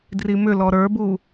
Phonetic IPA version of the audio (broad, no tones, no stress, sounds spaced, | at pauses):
d r i m ʏ l ɔ ɾ ə˞ b u